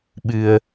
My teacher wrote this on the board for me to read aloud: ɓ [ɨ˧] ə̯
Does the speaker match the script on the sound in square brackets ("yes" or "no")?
yes